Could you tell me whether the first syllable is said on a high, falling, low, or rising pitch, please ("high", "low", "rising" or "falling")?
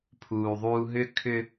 low